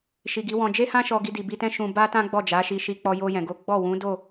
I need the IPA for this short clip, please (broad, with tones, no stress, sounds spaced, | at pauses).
ʃ i˨ ɡ i˨˦ w ɔ̃˧ d͡ʒ e˦ h ã˦ ʃ ɔ˦ ɡ i˦ d i˧ b i˧ t ɛ̃˦ ʃ ũ˧ b a˦ t ã˦ ɡ͡b ɔ˦˨ d͡ʒ a˨˦ ʃ i˧ ʃ i˧ k͡p ɔ˧ j o˧ j ɛ̃˨ ɡ o˨˦ ɡ͡b ɔ˦˨ w ũ˨˦ d o˦˨